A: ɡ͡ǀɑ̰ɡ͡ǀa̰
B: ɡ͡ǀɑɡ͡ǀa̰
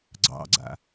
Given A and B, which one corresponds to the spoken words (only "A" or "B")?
A